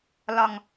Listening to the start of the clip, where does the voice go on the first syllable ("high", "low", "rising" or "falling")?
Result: low